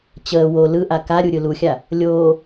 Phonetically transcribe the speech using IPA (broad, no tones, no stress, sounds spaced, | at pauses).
t͡ɕ əː w o l ɯ ʔ a k a ɾʲ u ɾʲ ɯ l u xʲ a | lʲ oː